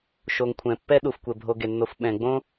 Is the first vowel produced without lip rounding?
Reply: no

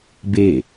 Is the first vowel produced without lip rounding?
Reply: yes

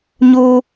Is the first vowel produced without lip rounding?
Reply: no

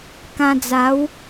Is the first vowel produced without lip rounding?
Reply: yes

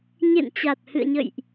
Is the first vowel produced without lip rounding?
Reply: yes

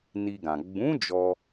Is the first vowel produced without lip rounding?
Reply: yes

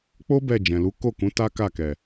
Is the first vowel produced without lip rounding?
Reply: no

